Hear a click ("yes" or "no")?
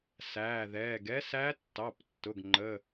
yes